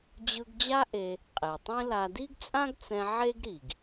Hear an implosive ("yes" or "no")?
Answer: no